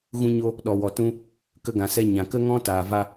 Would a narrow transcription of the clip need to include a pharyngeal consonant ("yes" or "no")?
no